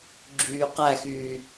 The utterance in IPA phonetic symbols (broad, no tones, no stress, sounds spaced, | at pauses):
ɡ͡ǁ yː q æ x yː